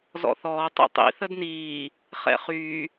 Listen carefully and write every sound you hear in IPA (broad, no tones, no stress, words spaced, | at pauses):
zɔ̰θɔː tˤḭtˤḭ θədniː | χɛ̰χyː